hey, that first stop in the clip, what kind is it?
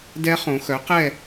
plain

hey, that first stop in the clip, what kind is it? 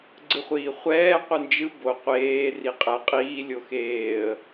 click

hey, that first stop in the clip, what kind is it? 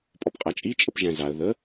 ejective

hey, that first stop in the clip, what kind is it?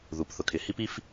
plain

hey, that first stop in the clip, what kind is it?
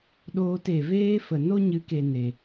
implosive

